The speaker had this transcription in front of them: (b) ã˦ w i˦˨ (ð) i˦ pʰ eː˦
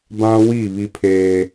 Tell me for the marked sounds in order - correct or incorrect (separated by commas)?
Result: correct, incorrect